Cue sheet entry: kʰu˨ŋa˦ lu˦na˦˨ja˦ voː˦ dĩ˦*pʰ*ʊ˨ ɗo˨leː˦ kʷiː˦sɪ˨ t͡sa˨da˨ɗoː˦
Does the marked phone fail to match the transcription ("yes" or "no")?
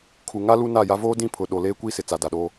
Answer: no